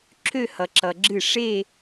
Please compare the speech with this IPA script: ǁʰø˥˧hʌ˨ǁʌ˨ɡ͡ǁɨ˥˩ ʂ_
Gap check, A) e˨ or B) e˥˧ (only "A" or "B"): B